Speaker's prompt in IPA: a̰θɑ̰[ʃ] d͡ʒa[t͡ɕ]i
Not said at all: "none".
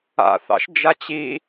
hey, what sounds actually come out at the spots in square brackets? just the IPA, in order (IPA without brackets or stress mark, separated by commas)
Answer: ʃ, t͡ɕ